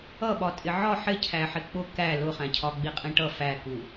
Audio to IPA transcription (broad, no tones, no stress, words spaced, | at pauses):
ʌɓɒ tʼɪʕɒ ħɪcʰæħɪ k͡pʊ kæ lʊχæ̃cʰɒ ɡ͡biqʼĩʈʌ fæku